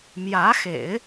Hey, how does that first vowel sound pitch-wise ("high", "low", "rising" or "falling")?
rising